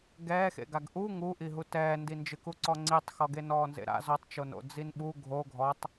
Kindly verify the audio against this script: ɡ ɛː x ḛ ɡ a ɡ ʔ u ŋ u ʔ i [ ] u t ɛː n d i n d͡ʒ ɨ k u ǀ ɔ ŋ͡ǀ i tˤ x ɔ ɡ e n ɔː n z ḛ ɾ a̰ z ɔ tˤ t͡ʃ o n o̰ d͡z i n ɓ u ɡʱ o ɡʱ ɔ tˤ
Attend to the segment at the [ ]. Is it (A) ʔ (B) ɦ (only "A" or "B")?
B